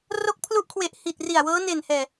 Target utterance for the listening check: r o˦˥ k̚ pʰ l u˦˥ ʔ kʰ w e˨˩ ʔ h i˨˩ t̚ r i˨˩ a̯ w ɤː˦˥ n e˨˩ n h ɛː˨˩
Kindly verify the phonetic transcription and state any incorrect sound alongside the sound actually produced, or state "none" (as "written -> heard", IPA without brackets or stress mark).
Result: none